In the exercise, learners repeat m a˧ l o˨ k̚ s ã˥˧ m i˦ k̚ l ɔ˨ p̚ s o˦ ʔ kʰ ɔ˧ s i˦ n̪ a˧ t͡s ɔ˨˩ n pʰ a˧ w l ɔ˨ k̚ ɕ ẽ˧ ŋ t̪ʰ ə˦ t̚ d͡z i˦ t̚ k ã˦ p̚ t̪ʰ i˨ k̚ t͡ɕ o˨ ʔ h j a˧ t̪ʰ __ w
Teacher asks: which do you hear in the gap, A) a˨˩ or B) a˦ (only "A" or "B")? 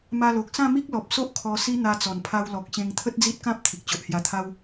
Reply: B